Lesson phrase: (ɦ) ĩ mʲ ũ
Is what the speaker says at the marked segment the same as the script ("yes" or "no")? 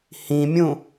no